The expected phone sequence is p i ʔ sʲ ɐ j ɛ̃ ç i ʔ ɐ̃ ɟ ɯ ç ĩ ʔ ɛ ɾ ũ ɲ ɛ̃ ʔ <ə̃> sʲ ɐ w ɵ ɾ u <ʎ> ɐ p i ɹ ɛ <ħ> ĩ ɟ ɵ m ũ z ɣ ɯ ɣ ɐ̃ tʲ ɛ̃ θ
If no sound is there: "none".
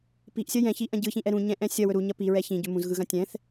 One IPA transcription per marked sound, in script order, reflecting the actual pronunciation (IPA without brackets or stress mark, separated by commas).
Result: ɛ̃, ɲ, ç